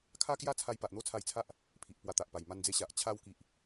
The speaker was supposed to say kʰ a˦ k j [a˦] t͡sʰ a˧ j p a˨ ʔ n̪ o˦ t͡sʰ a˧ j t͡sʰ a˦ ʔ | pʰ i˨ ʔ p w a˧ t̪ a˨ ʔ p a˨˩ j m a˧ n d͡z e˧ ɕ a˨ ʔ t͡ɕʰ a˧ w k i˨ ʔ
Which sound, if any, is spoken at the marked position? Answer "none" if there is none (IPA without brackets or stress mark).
a˦